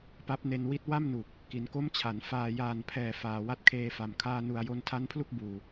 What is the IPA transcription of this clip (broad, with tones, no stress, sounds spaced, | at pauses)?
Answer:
p a˦˥ p̚ n e˧ n w i˦˥ t̚ w a˥˩ m n u˨˩ k̚ | k i˩˦ n k o˦˥ m t͡ɕʰ a˩˦ n f aː˨˩ j aː˨˩ n pʰ ɛː˨˩ f aː˨˩ w a˥˩ t̚ kʰ eː˧ f a˨˩ m kʰ aː˧ n u˨˩ a̯ j o˧ n tʰ a˦˥ n pʰ l u˥˩ k̚ b uː˨˩